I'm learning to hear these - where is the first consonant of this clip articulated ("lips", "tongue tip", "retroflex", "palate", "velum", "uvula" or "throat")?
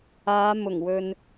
lips